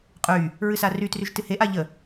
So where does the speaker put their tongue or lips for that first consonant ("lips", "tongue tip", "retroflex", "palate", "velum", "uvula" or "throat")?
uvula